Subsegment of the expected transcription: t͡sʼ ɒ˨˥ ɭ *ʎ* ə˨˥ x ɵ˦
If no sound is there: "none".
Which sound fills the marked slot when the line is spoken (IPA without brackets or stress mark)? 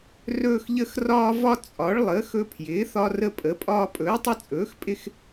lˠ